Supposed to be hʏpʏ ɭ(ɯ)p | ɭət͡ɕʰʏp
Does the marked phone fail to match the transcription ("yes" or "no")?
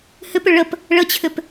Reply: yes